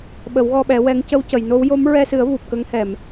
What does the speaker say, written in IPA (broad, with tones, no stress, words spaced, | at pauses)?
ɓə˨˩˦wɣɔ˧ɓɛ˨˩˦ wɛ˧˥ŋ cə˧wcə˨˩˨jno˧˥w jo˧˥mɹɛ˧sɨ˨˩˦ə̯ vu˨˩p̚kə˧˥ŋhɛ˨˩˨m